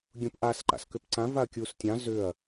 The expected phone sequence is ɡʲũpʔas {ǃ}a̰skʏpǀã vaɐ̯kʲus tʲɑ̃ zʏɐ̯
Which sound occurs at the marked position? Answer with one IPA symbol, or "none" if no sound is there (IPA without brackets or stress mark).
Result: ǃ